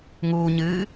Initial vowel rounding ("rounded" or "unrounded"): rounded